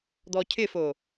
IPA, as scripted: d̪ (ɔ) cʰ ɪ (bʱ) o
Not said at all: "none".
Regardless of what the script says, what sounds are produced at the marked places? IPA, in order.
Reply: ɔ, f

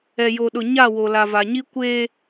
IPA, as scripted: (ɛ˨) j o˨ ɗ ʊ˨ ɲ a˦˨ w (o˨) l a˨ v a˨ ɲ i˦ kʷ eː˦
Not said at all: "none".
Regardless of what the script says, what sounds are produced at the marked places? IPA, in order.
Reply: ɛ˨, o˨

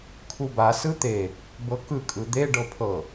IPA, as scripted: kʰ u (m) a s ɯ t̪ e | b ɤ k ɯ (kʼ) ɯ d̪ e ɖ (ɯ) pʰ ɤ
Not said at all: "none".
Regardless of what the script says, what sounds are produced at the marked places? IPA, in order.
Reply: b, kʼ, ɤ

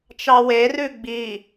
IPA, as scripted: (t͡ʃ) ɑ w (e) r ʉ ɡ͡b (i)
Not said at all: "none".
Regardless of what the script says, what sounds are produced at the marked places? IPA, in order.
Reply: t͡ʃ, e, i

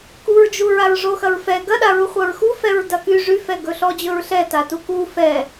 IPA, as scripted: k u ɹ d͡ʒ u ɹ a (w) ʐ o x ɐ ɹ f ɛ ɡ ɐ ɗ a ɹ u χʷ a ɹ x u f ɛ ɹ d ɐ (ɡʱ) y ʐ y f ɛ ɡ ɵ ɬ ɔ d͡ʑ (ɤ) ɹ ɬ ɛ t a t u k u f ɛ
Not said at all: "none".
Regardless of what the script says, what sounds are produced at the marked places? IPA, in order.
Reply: ɹ, k, ɵ

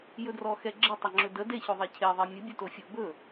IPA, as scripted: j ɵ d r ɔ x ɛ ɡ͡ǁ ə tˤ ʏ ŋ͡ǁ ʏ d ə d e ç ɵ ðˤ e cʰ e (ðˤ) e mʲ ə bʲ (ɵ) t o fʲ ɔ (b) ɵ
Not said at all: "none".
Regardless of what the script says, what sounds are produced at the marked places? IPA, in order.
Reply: ðˤ, ɵ, b

